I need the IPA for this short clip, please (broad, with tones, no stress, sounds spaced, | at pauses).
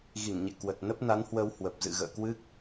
ɣ i˧˩ ŋ ɲ ḛ˧˨ k w ə˨˩ t̚ n ə˦˥ p̚ n a˨˦ n h w ə˧ w h w ə˨˩ p̚ z ɨ̰˧˨ ɣ ə̰ː˧˨ k w ɨ˦˥ k̚